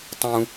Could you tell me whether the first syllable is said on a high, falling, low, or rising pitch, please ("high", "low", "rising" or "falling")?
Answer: high